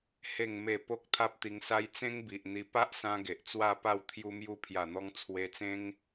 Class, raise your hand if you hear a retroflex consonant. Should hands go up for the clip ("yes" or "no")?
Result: no